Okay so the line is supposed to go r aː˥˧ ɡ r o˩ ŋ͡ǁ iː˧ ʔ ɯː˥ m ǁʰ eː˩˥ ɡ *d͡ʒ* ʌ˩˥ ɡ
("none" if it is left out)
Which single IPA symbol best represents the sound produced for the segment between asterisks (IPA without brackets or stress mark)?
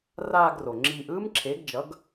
d͡ʒ